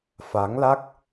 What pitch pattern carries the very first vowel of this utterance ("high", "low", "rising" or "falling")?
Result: rising